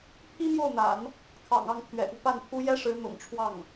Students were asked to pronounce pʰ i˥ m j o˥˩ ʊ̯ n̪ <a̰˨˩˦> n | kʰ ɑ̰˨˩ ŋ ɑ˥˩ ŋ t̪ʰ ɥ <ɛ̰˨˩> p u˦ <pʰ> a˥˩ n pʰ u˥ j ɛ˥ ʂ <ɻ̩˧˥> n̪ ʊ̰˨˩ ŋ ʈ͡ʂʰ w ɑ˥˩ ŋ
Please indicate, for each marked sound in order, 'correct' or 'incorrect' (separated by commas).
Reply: correct, correct, incorrect, correct